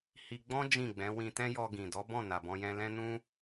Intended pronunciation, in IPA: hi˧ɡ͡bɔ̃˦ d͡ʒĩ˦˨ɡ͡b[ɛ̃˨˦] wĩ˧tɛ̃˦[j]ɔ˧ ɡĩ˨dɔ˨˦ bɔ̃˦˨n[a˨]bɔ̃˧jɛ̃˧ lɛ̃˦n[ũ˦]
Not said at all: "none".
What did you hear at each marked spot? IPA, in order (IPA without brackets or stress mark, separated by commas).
ɛ̃˨˦, j, a˨, ũ˦